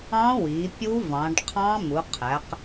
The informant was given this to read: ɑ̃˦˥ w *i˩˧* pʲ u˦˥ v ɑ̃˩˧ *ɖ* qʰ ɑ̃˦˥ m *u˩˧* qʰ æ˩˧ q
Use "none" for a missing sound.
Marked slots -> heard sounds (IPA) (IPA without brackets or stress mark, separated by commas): i˩˧, ɖ, u˩˧